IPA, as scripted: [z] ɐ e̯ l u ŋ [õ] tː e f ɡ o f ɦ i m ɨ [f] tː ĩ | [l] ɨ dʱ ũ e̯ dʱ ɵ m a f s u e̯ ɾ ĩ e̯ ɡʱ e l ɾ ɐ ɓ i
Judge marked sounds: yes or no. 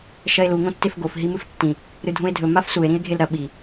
no, yes, yes, no

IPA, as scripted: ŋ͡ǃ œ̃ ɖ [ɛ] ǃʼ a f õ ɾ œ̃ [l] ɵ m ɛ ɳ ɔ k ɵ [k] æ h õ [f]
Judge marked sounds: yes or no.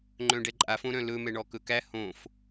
yes, yes, yes, yes

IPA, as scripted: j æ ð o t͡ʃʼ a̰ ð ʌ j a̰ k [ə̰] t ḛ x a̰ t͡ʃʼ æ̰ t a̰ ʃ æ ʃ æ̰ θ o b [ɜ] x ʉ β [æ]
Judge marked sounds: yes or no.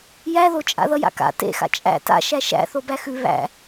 no, no, no

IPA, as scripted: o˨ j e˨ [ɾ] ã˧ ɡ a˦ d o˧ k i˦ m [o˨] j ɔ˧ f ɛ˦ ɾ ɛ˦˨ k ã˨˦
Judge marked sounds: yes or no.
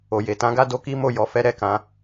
no, no

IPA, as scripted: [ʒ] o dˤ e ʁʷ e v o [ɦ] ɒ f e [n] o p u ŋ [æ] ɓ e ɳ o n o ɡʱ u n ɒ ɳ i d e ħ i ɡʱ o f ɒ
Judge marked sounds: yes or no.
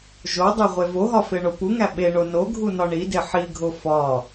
yes, yes, no, yes

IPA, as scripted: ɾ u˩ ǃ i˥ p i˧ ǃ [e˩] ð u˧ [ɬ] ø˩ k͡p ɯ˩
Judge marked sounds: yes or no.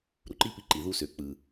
no, no

